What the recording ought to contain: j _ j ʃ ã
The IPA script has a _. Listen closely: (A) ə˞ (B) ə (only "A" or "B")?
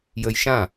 B